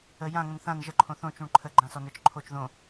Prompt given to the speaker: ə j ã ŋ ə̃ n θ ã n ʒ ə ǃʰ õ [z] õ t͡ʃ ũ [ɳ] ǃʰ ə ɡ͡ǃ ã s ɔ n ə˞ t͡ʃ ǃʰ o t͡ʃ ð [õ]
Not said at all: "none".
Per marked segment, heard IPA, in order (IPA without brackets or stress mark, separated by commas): θ, ɳ, õ